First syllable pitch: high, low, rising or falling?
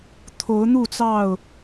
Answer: rising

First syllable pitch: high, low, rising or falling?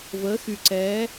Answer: rising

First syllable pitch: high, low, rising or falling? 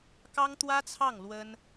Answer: high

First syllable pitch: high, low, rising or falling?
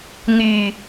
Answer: low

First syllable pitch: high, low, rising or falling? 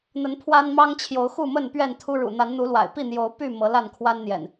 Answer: rising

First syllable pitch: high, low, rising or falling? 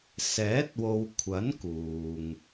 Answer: rising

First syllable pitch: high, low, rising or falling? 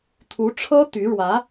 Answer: rising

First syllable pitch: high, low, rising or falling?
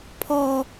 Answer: high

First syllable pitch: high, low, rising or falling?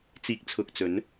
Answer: low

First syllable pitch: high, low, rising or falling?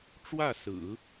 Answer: falling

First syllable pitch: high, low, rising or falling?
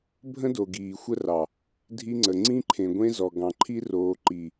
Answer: high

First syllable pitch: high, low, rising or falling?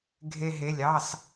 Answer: high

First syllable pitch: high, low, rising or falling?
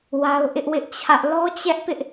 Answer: high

